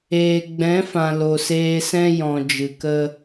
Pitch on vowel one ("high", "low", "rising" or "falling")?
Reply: low